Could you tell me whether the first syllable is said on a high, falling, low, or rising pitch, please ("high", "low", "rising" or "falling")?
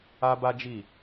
high